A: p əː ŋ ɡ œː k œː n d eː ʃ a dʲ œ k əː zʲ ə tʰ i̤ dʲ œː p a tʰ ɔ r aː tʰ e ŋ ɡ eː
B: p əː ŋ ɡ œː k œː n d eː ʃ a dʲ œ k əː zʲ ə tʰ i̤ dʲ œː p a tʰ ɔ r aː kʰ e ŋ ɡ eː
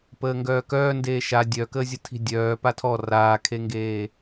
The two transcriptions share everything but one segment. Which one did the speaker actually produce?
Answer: B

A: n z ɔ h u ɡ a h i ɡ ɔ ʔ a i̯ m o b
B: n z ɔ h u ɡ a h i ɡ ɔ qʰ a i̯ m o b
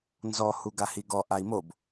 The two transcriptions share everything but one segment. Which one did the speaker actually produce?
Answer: A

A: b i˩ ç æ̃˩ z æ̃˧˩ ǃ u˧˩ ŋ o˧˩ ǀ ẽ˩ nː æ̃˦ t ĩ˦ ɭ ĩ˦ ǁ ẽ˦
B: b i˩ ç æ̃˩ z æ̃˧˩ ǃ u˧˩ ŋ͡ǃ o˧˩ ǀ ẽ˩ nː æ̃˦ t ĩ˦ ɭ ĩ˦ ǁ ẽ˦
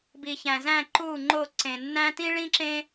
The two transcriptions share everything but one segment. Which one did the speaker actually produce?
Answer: B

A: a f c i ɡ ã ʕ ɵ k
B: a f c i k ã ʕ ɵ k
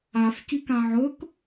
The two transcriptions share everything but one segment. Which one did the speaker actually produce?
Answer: B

